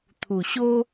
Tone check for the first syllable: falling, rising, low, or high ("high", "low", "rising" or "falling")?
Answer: low